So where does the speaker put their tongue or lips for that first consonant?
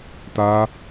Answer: tongue tip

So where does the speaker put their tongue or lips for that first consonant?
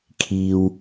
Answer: velum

